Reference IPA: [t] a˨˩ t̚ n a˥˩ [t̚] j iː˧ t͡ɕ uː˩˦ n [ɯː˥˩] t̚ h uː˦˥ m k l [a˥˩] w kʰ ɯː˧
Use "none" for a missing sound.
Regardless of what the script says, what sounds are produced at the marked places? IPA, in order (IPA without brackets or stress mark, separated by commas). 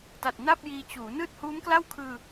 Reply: t, p̚, ɯː˥˩, a˥˩